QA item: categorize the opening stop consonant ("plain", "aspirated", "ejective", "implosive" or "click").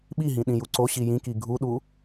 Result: implosive